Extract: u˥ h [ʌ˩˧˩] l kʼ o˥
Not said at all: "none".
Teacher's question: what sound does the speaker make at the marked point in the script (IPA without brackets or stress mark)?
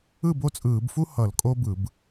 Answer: ʌ˧˩˧